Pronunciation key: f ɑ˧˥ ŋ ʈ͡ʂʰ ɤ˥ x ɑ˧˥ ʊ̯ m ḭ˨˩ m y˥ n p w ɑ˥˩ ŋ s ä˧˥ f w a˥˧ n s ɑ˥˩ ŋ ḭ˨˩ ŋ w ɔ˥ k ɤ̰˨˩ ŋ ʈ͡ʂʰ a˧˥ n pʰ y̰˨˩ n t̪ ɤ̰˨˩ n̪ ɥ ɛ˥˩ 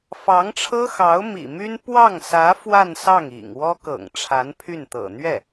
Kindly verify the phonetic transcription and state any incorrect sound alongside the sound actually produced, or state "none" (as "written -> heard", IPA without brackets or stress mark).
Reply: y̰˨˩ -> y˥˩